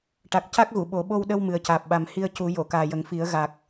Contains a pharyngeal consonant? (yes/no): no